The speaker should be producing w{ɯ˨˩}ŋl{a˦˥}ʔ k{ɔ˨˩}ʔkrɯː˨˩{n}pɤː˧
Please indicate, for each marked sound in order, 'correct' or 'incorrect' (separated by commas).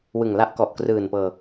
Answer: correct, correct, correct, correct